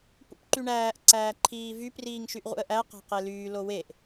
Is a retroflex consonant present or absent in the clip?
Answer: present